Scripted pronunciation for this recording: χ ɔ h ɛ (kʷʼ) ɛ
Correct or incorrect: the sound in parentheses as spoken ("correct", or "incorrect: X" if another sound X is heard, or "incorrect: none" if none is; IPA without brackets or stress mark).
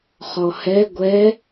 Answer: incorrect: ɡʷ